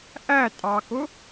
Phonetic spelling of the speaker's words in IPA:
ʔ æ tʼ ɑ k ʊ

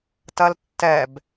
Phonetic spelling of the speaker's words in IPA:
t ɐ l tː ɛ b

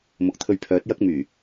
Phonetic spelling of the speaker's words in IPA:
m ʊ˨ k̚ t̪ʰ ɵ˧ ɥ pʰ œː˨˥ t̚ j ɐ˥ k̚ m yː˨˩

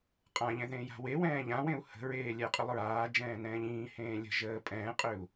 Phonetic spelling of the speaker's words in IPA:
qʼ ã ʎ ɛ̃ ð ẽː j a̤ w e w ɛ̃ː ʎ ã w ẽ u̯ h ə̤ ɹ eː lʲ ɛ qʼ y lˠ ɹ aː d͡ʒ ɛ̃ː n ɛ̃ː ʎ ĩː h ẽː lʲ ə̤ ʒ əː pʼ ɛ̃ː qʼ ø u̯

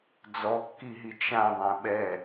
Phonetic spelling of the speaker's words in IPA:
d͡z ɔ kː i ɦ i t͡ʃ ã ðˤ ɛ̃ ɓ ɛ

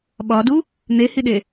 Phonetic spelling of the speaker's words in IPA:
ɓ ɒ d u | n̪ e h i ɗ e

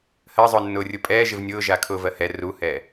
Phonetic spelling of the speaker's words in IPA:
h ɜ zˤ ʊ nː ʊː rʲ ʊ pʼ ɛː ʒ ɪ v nʲ ʊː ʒ a kʰ ʊː v ɜ h ɛ r u h ɛː

